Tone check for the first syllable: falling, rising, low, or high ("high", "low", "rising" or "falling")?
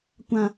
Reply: low